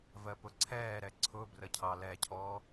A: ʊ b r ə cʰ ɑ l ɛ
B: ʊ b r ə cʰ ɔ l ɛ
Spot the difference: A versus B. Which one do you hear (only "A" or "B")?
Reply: A